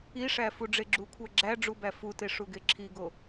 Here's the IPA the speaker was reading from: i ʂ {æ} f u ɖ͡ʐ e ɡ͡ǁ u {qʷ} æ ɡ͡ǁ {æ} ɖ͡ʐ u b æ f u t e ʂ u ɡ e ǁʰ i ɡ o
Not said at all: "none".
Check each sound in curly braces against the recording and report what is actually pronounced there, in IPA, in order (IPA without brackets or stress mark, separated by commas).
æ, kʷʰ, æ